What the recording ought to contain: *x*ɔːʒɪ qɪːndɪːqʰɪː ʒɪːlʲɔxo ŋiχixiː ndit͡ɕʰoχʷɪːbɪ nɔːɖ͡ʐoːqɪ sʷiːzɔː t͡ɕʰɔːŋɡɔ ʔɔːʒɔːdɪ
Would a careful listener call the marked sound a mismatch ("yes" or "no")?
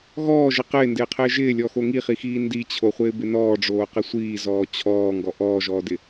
yes